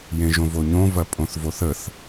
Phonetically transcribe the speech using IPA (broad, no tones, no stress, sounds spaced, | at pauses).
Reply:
j ẽ ʒ õ v o ɲ õ v ɐ pʼ õ θ v o θ ə θ